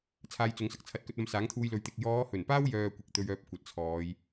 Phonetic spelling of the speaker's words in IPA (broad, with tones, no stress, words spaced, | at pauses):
t͡sʰaː˧jt͡sʊ˨˧ŋsɐ˨k̚t͡sʰɐ˧t̚ kɵ˧t̚ɐ˧msaː˨˥ŋt̪ʰuː˧j lɵ˨ɥt̪ɪ˨k̚ jɔː˨˧hɵ˨˩npaː˥w jœː˧kʷɪ˨k̚t̪ɵ˧ɥ œː˧p̚kʷɐ˨t̚t͡sʰɔː˨˧j